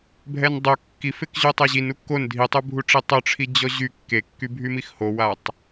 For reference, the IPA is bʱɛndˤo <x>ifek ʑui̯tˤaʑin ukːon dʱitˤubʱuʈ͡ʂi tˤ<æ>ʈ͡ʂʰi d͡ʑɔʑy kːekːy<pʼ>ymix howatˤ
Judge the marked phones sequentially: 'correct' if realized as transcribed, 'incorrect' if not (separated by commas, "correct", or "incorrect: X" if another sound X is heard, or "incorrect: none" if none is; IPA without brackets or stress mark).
incorrect: kː, incorrect: œ, incorrect: bʱ